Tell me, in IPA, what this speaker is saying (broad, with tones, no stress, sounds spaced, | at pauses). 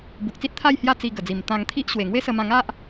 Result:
b u˨ k̚ t͡s i˦ t̚ t̪ʰ a˥˧ j h j a˦ t͡s i˧ ɡ ə˨˩ d͡z i˨˩ m t̪ ã˧ ŋ t̪ʰ i˦ ʔ ɕ w e˨˩ ŋ w e˦ s ə˧ m ã˧ ŋ a˦ ʔ